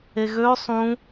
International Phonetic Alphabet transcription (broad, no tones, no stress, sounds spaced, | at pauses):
e ɣ ø sˤ ũ